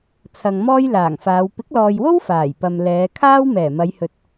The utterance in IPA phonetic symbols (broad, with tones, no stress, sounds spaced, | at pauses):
t͡sʰ ɐ˨ ŋ m ɔː˥ j l aː˨˩ ŋ f aː˨˧ w p ɪ˨˥ k̚ l ɔː˨ j w o˥ w f aː˨˩ j p ɐ˨ m l ɛː˨˧ kʰ aː˥ w m ɛː˨˩ m ɐ˨˧ j h ɵ˨ t̚